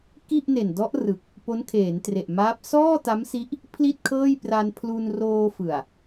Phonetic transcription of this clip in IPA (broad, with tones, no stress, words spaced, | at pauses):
ki˥˩ʔne˨˩n dɔ˦˥ʔrɯ˨˩k̚ | po˦˥nkʰeː˩˦ntre˨˩ʔmaː˦˥p̚ sɔː˥˩ta˦˥msi˦˥ʔ | pʰli˥˩t̚kʰɤː˥˩j pra˧npʰlu˧n roː˧fɯ˨˩a̯